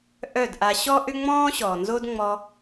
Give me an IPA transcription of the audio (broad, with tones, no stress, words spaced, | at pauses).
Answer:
ʔœ˦˨dʔa˧ ɕɔ˦ʔʏ˦ŋ͡mɔ̃ː˦ ɕɔː˨nzo˦dŋ͡mɔ˧